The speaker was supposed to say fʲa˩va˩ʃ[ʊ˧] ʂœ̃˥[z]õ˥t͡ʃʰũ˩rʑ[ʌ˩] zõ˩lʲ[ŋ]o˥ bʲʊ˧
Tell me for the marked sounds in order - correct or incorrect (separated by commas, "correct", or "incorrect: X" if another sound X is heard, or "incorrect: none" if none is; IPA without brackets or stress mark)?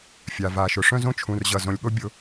incorrect: ʊ˩, correct, correct, incorrect: ɠ